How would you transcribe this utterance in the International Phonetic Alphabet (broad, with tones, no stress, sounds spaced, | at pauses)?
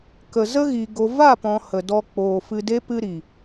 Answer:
k ə˨ z ə˦ ɣ i˨ ɡ o˨ v a˦˨ p ɔ̃˨ h ə˨ d ɔ˧ k͡p oː˨ f ɨ˧ d e˦ p ɨ˧ ɾ i˨